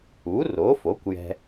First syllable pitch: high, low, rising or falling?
rising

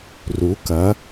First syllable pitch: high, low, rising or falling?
rising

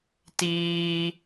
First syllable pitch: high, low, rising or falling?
high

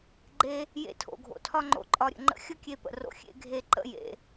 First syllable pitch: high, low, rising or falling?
high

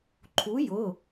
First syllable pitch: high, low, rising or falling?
rising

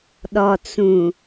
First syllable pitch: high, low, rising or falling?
low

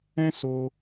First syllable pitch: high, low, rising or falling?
high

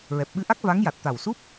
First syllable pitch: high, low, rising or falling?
low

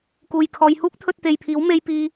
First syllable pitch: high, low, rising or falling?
low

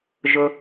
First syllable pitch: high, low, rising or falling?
low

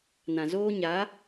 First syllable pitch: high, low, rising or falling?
low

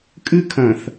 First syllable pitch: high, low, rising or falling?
high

